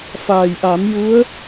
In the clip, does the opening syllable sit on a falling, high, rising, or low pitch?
low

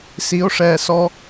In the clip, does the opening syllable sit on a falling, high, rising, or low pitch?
rising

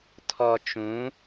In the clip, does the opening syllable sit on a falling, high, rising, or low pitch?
low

